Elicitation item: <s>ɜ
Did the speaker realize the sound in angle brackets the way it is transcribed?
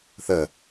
no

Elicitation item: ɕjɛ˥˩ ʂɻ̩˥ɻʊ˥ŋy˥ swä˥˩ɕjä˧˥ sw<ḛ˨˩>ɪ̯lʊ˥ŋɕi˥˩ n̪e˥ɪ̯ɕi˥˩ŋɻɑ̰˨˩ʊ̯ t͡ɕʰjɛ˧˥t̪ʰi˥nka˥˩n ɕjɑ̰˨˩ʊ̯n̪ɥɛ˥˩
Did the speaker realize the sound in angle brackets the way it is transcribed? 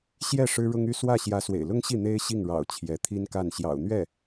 yes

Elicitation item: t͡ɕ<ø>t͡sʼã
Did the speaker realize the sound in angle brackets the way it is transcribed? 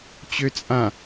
yes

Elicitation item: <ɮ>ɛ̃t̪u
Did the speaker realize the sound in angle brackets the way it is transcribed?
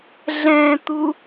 yes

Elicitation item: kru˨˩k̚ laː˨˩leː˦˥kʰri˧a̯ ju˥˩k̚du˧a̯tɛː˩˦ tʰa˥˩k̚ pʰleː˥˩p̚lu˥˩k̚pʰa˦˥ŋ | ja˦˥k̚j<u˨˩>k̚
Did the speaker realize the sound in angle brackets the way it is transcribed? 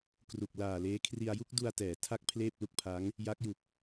yes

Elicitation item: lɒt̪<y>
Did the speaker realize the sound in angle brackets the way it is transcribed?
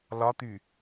yes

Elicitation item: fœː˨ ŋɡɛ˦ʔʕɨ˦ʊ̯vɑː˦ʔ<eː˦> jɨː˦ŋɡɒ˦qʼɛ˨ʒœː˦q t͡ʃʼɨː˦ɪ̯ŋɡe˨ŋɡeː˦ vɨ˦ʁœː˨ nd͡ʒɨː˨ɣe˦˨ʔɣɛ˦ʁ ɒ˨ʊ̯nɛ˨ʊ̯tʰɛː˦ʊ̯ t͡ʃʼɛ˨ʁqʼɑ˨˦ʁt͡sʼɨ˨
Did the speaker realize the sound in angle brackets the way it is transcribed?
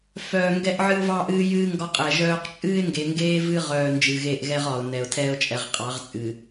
no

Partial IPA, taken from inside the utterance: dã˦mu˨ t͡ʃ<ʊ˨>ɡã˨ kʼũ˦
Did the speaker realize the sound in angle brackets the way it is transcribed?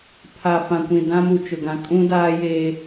yes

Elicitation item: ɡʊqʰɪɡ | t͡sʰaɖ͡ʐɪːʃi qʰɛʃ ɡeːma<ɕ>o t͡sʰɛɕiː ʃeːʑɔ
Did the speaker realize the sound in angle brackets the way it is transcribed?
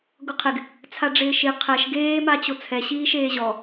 no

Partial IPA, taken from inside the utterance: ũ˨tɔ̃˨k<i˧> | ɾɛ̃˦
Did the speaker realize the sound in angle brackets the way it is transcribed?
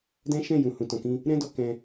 no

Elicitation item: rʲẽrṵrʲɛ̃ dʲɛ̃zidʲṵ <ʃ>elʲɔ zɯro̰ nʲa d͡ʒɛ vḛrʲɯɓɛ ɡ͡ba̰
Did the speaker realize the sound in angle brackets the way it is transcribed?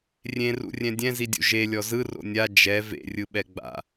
no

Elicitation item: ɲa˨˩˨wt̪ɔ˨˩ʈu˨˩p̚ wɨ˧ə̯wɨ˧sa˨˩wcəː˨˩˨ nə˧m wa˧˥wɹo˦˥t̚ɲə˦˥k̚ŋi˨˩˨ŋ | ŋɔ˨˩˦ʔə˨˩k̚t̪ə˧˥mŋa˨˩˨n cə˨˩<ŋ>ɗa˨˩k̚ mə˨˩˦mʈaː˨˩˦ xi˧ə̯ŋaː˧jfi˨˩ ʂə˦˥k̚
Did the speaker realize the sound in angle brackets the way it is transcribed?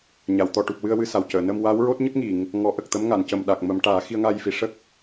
no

